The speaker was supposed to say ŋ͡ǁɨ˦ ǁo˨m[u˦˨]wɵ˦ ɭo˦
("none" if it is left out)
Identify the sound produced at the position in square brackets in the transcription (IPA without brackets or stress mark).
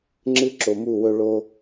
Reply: u˦˨